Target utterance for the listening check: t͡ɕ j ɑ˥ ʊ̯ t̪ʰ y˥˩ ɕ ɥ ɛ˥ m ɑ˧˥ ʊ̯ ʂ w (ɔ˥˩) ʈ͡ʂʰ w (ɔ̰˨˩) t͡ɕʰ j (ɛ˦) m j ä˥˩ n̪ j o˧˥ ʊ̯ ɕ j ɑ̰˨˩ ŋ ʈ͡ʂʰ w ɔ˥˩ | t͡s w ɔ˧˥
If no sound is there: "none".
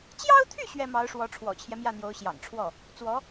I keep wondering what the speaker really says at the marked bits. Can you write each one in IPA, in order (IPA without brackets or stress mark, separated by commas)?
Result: ɔ˧˥, ɔ̰˨˩, ɛ˦